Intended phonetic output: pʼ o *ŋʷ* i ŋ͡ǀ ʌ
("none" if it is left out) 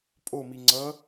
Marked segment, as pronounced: m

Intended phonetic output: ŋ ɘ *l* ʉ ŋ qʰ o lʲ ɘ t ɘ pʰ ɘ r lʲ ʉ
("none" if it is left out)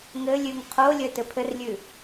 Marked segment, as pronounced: lʲ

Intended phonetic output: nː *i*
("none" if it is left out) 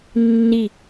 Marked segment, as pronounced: i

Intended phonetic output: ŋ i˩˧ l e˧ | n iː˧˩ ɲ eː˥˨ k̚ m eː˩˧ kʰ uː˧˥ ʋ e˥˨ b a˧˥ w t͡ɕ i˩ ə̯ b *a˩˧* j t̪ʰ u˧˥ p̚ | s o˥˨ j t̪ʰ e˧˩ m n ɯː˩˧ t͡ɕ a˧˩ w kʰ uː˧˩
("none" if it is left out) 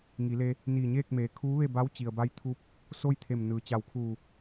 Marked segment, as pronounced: a˧˥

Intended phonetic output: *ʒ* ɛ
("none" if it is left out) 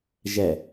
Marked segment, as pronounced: ʒ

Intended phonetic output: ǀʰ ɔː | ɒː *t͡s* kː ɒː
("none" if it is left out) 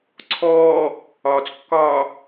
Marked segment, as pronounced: t͡s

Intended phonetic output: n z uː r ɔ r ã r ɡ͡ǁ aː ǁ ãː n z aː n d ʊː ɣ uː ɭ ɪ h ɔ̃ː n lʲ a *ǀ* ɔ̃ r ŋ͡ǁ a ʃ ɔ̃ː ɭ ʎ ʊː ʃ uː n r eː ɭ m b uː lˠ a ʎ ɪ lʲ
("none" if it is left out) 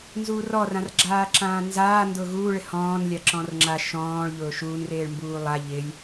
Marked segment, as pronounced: ǁ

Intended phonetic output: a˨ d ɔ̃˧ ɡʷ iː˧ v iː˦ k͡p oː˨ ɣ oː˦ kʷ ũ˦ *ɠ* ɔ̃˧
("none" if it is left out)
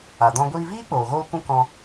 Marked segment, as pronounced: k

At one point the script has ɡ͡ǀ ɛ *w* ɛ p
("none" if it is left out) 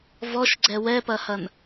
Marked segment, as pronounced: w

